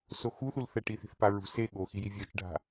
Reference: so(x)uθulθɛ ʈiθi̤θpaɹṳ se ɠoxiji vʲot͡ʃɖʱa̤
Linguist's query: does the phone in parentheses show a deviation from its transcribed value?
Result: no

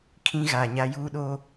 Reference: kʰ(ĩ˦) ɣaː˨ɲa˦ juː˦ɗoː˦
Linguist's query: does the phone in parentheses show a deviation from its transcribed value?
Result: no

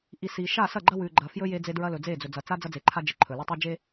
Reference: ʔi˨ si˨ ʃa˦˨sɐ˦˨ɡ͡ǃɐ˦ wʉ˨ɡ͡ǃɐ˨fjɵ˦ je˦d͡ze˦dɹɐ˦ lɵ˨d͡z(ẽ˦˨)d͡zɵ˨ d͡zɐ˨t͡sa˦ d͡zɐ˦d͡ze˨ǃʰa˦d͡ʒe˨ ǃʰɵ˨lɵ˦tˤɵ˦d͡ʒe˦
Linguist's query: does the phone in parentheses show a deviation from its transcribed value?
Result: yes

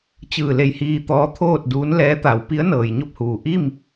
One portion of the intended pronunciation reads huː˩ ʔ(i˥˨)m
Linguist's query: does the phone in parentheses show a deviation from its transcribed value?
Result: no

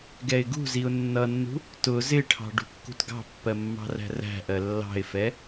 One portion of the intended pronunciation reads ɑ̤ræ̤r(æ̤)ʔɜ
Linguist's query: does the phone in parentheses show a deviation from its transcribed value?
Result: no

